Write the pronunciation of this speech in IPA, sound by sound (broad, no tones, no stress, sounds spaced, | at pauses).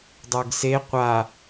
dˤ ə˞ ɡ s e qʷ a